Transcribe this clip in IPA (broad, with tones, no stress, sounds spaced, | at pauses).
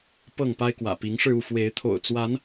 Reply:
p ɤ˥˨ ŋ p a˦ ɪ̯ k w ä̰˨˩ p i˨˦ ŋ ʂ ɻ̩˧ u˥˨ f w e˨˦ ɪ̯ t̪ʰ o̰˨˩ ʊ̯ t͡s w a˨˦ n